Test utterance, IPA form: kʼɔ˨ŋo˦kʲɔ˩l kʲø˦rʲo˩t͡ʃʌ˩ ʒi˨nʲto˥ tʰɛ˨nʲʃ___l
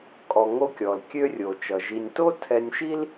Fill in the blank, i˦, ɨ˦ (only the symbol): i˦